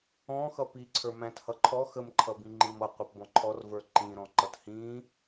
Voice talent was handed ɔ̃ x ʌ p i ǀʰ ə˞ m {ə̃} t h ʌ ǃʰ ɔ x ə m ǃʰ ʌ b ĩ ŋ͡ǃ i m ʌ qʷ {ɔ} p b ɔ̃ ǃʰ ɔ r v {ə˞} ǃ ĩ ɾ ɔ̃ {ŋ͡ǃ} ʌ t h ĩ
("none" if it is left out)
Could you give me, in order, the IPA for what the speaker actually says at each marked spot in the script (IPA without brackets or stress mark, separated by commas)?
æ̃, ʌ, ə˞, ǃ